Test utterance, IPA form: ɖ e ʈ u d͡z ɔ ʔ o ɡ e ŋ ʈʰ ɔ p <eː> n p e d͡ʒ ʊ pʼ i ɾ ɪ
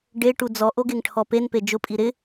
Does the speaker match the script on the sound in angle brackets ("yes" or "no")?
no